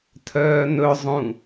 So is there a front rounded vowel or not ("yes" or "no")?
yes